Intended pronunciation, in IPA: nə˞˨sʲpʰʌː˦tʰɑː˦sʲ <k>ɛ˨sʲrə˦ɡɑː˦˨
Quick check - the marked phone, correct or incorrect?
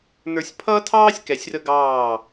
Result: correct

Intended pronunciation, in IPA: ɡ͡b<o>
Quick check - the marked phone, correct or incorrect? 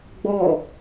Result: incorrect: ɔ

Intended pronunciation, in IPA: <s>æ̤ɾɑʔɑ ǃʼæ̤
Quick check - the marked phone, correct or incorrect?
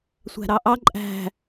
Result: incorrect: sʷ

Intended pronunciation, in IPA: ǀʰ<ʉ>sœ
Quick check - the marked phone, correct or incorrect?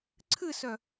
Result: incorrect: ɨ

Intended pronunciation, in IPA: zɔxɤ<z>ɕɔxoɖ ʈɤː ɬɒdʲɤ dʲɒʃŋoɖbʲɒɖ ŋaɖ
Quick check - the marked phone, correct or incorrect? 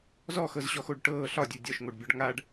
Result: correct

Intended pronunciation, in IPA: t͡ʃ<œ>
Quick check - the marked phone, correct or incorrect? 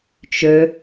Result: incorrect: ø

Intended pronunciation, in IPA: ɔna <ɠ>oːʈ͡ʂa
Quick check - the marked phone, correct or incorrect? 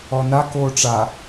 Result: incorrect: k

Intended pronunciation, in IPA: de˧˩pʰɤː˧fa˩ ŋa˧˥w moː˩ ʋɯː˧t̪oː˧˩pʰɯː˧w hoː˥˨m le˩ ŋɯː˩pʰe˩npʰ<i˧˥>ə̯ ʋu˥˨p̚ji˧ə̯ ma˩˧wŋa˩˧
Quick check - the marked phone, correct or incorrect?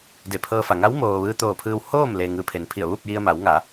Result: incorrect: i˧˩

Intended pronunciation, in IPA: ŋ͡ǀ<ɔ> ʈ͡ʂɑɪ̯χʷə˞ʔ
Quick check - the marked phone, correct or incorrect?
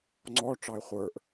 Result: correct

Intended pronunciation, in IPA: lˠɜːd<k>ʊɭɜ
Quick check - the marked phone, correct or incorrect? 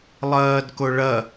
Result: correct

